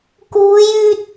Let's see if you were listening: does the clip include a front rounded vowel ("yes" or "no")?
yes